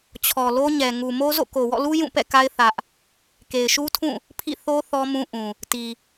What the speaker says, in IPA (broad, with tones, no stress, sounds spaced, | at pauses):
t͡ɕʰ ɔ˨ l o˦ ɲ ɛ˨ ŋ u˨ m o˦ z o̰˦˨ k o˨ w ɔ̰˦˨ l u˦ j ũ˦˨ p ɛ̰˦˨ k a˦ ɪ̯ θ ä˦ ʔ | k e˨ ɪ̯ ʃ u˦ tʰ ũ˦˨ | pʰ ḭ˦˨ θ o˦ θ ɔ˦ m ũ˦ ʔ ũ˨ | t i˨